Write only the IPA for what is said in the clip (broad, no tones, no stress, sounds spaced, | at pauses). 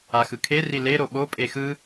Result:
a x ɯ kʰ e r i l e ɾ o ɓ o pʼ e x ɯ